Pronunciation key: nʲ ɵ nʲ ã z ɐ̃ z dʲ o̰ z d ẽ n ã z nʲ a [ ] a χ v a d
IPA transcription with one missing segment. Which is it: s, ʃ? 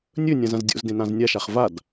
ʃ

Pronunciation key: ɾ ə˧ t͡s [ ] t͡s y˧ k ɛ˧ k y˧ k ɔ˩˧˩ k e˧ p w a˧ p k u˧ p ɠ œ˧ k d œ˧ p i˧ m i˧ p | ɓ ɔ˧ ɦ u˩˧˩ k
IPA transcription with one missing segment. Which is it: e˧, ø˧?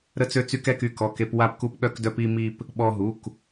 ø˧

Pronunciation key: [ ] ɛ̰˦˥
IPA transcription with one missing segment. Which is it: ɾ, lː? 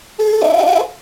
lː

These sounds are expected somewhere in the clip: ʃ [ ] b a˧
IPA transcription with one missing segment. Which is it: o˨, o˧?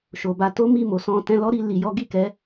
o˨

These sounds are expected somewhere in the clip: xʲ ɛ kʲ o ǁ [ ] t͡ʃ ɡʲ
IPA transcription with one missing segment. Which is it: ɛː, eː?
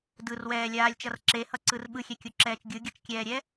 ɛː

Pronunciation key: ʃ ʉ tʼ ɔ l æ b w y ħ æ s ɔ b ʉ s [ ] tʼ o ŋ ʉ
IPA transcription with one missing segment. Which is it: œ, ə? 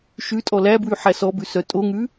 œ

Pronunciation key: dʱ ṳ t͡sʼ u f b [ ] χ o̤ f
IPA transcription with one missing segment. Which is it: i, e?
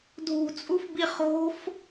i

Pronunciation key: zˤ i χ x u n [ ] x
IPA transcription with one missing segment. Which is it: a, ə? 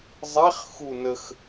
ə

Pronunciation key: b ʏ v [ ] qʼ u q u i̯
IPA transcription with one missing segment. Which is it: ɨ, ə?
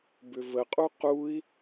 ə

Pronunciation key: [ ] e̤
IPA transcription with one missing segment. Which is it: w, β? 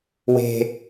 w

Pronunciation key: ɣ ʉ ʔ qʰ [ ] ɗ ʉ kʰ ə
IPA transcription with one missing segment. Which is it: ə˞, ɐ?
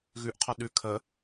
ɐ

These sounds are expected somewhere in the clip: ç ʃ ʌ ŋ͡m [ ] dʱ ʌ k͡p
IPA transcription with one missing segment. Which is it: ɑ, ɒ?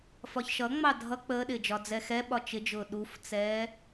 ɑ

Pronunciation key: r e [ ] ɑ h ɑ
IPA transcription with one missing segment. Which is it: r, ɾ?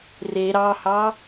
ɾ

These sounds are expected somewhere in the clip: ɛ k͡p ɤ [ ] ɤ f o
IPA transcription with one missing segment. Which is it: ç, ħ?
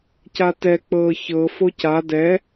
ç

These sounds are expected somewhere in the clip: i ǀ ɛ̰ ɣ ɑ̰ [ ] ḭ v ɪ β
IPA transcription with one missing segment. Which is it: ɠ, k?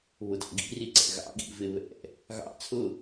ɠ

